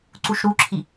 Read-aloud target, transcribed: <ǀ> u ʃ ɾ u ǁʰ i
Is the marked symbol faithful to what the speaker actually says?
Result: yes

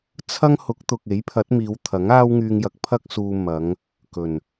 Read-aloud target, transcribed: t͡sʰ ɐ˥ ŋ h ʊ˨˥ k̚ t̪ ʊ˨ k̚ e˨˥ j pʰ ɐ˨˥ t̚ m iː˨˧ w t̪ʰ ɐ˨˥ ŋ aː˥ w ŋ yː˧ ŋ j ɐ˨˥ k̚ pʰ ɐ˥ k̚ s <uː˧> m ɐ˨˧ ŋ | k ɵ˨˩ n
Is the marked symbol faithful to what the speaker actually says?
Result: yes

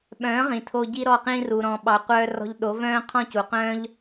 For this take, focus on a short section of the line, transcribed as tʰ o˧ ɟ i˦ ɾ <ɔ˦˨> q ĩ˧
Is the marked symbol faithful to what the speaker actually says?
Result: yes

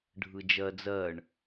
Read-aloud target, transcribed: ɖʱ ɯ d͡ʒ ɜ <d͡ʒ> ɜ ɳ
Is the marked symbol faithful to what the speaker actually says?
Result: no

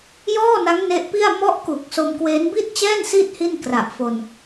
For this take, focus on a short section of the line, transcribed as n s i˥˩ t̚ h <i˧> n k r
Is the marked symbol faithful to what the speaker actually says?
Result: no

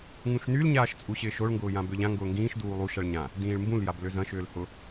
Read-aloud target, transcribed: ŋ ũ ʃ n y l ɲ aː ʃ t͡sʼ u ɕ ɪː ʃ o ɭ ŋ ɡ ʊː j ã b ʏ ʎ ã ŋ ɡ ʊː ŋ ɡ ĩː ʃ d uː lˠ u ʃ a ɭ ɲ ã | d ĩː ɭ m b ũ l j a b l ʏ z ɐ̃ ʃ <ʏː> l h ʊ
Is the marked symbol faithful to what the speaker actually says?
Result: yes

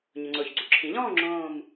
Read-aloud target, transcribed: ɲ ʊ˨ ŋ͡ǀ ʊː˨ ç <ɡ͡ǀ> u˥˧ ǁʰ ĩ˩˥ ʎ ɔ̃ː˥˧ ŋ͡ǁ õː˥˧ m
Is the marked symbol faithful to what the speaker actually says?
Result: yes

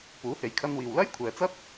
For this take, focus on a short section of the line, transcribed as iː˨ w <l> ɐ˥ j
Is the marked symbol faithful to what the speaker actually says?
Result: yes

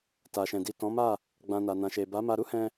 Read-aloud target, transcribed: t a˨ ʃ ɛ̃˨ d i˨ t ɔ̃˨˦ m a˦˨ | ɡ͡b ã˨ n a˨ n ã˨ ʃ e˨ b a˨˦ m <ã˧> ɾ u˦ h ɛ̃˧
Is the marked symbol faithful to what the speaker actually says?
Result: no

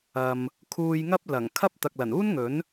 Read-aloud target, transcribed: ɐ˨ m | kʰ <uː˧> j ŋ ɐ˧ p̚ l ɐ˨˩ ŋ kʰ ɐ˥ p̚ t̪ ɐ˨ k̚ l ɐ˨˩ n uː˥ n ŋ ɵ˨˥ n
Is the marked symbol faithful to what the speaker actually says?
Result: no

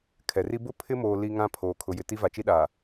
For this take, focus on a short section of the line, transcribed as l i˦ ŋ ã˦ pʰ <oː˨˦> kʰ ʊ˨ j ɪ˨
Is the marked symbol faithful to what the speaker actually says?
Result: no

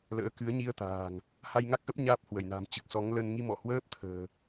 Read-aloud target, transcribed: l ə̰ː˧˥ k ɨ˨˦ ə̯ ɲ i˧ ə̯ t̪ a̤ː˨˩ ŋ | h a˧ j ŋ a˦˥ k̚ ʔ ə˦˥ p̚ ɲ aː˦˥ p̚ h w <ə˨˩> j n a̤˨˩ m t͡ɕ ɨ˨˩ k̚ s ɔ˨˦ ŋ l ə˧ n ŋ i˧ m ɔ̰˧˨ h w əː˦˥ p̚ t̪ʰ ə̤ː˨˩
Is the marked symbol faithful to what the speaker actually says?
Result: no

